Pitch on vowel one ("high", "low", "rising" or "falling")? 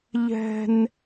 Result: high